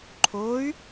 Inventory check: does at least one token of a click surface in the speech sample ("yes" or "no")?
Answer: yes